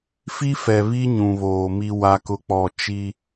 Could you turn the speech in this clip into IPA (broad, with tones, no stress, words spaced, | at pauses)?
fi˦fɛ˨βi˦ ɲũ˨βoː˨ mi˦wa˦kʊ˦k͡pɔ˦˨ t͡ʃi˦